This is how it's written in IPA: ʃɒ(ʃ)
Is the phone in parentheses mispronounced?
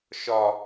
yes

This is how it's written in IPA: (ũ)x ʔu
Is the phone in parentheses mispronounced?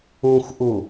no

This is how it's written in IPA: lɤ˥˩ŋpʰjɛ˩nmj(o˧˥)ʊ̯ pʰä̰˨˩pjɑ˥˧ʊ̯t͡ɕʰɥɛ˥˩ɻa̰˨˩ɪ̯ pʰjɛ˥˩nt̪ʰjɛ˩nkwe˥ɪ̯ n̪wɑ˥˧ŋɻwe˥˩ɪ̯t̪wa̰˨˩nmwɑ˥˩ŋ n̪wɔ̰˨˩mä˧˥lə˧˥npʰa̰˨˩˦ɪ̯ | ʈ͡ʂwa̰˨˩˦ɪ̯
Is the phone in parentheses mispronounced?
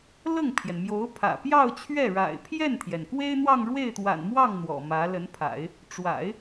no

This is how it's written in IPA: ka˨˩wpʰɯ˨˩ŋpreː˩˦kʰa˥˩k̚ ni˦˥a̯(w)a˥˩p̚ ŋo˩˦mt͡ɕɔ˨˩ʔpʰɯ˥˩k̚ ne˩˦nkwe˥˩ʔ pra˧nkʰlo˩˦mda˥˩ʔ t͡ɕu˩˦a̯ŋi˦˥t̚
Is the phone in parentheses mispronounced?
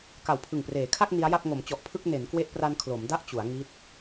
yes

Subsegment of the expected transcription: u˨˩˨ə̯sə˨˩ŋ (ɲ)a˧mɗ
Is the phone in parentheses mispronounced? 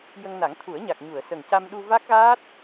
yes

